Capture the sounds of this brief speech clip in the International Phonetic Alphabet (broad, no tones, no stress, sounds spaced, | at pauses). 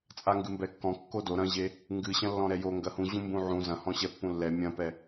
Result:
t͡sʼ a ŋ ɡ ɨ m b ɛ kː ɔ̃ kː o d o ɾ ɐ̃ ʑ e | ŋ ɡ ɨ ɕ ɐ̃ lː ɔ̃ ɾ ɛ j o ŋ ɡ ɐ h ũ ʑ ũ m b ũ ʕ ũ z ɐ̃ h ɔ̃ ɕ ɛ pː ũ lː ɛ mʲ ɐ̃ p ɛ